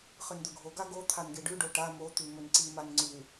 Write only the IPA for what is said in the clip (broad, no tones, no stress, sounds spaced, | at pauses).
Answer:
χ ɨ n d̪ ɵ ɡʱ o ɡ a ɡ o t̪ʰ a n ɡ e ɖ ʉ ɖ o ʈ a m o t̪ ʉ m ɵ n ǀ i m a n ŋ͡ǀ ʉ